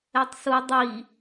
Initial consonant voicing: voiceless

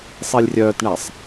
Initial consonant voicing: voiceless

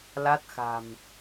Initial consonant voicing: voiced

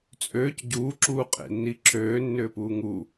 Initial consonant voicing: voiceless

